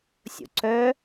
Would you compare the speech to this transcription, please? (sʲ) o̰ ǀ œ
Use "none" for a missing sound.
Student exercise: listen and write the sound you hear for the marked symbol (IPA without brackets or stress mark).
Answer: sʲ